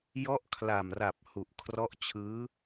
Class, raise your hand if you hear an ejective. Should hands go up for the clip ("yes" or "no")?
no